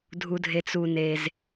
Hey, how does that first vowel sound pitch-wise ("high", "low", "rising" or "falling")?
low